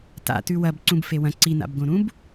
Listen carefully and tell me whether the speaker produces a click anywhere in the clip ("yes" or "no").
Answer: yes